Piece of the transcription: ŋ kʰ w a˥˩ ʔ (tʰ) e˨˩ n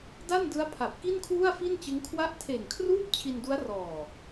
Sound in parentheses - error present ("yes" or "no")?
no